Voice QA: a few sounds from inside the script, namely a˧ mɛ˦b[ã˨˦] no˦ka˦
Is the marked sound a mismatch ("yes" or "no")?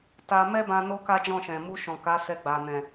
yes